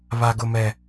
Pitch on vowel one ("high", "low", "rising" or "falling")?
low